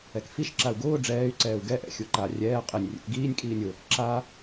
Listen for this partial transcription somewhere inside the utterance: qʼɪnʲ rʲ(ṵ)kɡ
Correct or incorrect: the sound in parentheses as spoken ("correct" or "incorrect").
correct